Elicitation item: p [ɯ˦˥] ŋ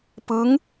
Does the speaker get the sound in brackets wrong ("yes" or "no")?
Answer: no